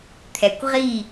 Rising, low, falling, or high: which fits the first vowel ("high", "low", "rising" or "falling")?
low